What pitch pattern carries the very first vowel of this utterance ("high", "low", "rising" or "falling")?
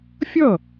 falling